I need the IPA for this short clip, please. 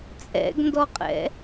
t͡sʼ ɛ̰ ɡ n d ɔ qʼ ɛ̰

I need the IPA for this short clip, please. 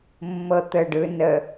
mː ɤ t̪ ə ɖ ɯ n ə

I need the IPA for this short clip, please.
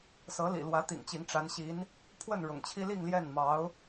s ɤ˧˥ l ḭ˨˩ l w ä˧˥ t̪ ḭ˨˩ ŋ t͡ɕ i˧˥ ŋ ʈ͡ʂ a˧˥ n ɕ i˧˥ n | pʰ w ə˥˩ n ɻ ʊ̰˨˩ ŋ t͡ɕʰ i˥ l i˥˧ ŋ l j ɛ˥˩ n m ɑ˧˥ ʊ̯

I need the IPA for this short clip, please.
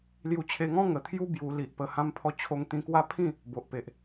l j u˧ t͡ɕʰ e˧ ŋ ɔ̃˦ ŋ ə˨˩ t̪ʰ j u˦ b j u˧ l i˨ ʔ p ə˧ h ã˧ m pʰ ɔ˧ t͡ɕʰ o˧ ŋ t̪ ĩ˧ k w a˦ pʰ ĩ˥˧ | b o˨ ʔ p e˨ ʔ

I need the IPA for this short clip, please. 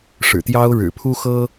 ʂ ɻ̩˨˩ t̪ j ɑ˥ ʊ̯ ɻ ɻ̩˨˩ pʰ u˥ x ɤ˥

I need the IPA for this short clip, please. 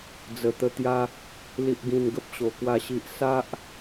d͡z ə˨˩ t̪ ə˧ t̪ j a˧ | l i˨ ʔ ɡ ĩ˨˩ n ɡ ə˦ p̚ ɕ o˨˩ k w a˥˧ ɕ i˦ ʔ s a˦ ʔ

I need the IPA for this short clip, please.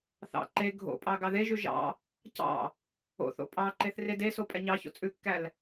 θ ɑ̰ ǃ e ɡʱ o̰ pʼ ɑ ɡ ɑ ð e ʒ ʉ ʒ ɑ̰ | c ɑ̰ | o̰ θ o̰ pʼ ɑ ǃ e θ r e d e s o pʼ ɛ ɲ ɑ ç o̰ t͡sʼ ʉ kː æ l

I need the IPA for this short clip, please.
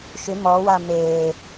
ʃ ʏ m ɔ w a m e

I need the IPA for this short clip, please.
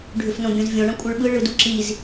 ɖʱ ʏ f n õ bʲ õ z vʲ õ ɳ ɐ̃ kʷʼ ɯ ɭ ɓ ɯ ɭ ɯ d u ǁ i z

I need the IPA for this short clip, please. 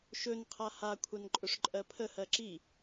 ʃ ɵ n qʰ a h a kʷʰ a n ǃʼ ɵ ʂ ǃʼ ɜ pʰ ə h ɜ ǁ i

